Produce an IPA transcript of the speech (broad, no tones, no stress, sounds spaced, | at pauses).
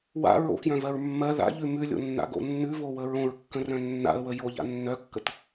w a̰ ɹ o̰ k j œ̃ v ɜ ɹ mː ɜ ð a̰ ʎ ʉ m ʉ lʲ o̰ nː a̰ ɡ o̰ nː ʉ v o w ə ɹ õ ɹ kː ə̃ r œ̃ nː a̰ ə̯ w ə j o ʎ a̰ nː œ kː ə t